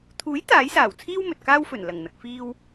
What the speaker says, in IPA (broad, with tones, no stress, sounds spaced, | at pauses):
t̪ʰ uː˨˥ j t̪ aː˨˥ j s aː˨˩ w t͡sʰ iː˥ w m ɵ˨ t̚ k aː˥ w f ɵ˨˩ n l ɐ˨˩ ŋ n̪ ɐ˨ k̚ f iː˧ w